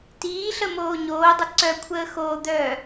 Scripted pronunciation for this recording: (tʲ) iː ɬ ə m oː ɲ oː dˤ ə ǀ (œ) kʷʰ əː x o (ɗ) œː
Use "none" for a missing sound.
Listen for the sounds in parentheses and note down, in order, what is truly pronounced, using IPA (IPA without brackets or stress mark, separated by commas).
t, œ, d̪